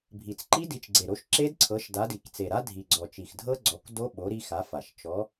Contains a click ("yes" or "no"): yes